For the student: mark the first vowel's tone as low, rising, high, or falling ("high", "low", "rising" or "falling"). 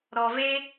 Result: low